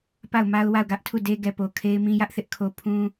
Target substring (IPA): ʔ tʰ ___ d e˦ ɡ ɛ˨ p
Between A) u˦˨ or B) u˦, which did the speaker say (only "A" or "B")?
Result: A